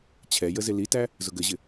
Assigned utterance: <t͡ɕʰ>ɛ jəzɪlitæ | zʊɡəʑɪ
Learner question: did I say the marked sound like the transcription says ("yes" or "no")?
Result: yes